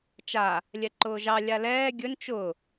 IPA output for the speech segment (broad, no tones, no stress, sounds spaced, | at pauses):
t͡ʃ a | lʲ ɛ ǃ ʊː ʒ ɑ lʲ a l ɛː ɡʲ ɵ n t͡ʃ ʊ